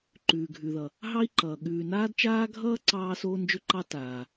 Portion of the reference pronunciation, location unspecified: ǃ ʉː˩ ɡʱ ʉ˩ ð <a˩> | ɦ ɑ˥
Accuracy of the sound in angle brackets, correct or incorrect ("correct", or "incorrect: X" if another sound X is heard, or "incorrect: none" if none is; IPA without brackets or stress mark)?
incorrect: ʌ˩